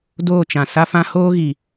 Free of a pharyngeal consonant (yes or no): yes